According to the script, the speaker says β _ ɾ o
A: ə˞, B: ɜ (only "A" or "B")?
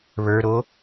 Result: A